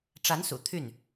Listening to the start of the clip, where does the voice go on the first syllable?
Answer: rising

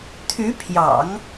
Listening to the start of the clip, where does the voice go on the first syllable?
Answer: rising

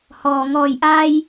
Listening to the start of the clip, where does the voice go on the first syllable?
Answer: low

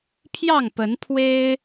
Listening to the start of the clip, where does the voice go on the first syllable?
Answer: falling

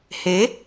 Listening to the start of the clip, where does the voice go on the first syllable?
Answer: rising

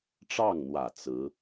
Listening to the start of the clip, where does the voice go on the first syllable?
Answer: falling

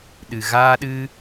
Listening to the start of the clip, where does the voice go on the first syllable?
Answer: low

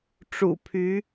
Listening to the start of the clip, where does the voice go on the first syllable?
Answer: low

